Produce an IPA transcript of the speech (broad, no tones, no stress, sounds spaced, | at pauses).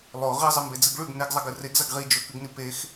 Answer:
lˠ o ʁ i zˤ ɨ m b e d͡z ɨ ɡ ɭ ʉ ɡ n e ɡ zˤ ɐ ɡ ɨ r e ɡ z ɐ ɡ ʁ i d͡ʒ ɵ k ʉ ɡ n i p e x